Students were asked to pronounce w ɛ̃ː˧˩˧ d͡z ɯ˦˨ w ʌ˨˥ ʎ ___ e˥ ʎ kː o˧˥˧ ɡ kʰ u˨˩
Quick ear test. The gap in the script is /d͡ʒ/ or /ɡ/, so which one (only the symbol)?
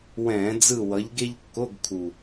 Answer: ɡ